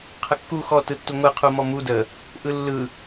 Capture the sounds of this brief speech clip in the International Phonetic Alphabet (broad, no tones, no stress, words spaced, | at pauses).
qʰəkːu xɔtɯtːu ŋʷɯ qʰumɔmu də | ʔɯlːɯ